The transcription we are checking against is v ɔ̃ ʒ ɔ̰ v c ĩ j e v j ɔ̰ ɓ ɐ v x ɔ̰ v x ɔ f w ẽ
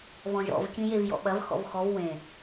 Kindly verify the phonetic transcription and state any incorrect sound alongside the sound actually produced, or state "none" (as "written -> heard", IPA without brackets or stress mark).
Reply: f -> v